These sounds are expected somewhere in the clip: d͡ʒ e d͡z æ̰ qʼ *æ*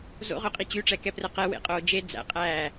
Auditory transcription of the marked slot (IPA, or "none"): æː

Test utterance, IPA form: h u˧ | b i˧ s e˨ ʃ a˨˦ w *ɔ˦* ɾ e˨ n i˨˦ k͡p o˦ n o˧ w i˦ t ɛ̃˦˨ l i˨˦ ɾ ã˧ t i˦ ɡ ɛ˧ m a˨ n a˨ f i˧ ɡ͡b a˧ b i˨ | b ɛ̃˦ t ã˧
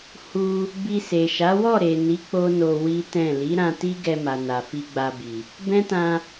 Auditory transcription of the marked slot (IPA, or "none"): ɔ˦˨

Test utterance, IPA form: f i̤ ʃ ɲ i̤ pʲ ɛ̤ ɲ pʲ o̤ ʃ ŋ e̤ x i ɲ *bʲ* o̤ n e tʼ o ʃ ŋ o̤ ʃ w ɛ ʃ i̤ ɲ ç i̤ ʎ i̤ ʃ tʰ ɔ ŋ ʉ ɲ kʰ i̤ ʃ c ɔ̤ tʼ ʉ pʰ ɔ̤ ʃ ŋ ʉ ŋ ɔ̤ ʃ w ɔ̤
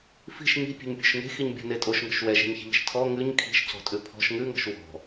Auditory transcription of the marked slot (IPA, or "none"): bʲ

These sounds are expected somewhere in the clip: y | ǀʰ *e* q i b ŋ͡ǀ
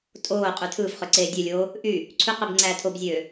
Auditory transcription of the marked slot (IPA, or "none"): y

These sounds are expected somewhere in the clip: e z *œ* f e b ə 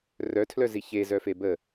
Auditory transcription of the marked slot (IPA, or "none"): œ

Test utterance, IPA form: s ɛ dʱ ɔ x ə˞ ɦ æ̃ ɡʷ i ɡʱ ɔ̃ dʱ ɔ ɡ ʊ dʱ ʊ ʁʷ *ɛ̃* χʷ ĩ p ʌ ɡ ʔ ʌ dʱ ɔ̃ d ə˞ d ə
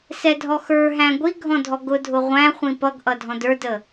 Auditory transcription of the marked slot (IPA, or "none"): æ̃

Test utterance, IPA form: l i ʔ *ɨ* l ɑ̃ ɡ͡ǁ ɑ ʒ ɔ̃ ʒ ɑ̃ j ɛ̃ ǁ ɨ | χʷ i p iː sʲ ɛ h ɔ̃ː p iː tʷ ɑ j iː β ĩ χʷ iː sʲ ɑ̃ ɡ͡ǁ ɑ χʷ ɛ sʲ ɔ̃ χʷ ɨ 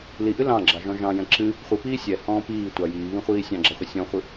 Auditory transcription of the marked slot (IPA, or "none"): ɨ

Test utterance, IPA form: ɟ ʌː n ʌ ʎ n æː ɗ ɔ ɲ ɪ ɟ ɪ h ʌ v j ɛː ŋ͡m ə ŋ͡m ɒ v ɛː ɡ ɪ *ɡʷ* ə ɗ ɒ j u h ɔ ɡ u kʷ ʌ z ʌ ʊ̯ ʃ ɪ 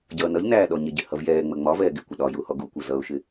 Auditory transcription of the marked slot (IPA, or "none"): kʷ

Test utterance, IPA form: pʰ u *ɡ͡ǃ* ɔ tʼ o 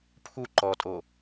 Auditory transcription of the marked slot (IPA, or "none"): ǃ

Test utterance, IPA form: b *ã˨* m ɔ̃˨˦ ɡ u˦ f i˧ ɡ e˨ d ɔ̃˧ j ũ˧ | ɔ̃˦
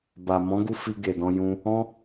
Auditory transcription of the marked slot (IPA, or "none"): a˨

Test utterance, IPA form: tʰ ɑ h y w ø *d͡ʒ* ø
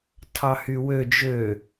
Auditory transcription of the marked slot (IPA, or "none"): d͡ʒ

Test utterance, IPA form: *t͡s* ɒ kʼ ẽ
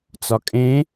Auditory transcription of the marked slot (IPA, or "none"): t͡s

